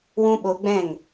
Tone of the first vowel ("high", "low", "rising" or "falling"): high